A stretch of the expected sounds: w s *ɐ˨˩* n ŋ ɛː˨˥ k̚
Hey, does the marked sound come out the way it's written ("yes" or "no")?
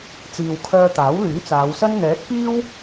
no